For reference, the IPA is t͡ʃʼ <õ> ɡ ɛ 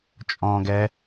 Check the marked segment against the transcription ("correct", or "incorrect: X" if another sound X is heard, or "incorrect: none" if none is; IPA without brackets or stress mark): incorrect: ɔ̃